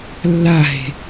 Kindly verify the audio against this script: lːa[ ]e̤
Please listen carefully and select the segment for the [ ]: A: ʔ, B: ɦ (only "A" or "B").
B